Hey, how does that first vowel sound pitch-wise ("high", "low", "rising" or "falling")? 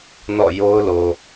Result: falling